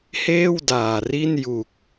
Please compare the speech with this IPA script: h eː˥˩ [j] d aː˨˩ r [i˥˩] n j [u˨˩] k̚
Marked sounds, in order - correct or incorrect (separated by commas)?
incorrect, correct, correct